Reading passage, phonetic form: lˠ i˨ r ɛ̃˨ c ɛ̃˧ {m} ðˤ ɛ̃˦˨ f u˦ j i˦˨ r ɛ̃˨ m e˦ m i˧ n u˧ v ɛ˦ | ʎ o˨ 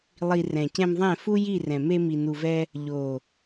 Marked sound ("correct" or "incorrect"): correct